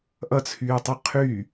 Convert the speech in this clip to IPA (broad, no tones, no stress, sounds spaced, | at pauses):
ʔ ʌ t͡sʰ yː tˤ ʌ qʰ y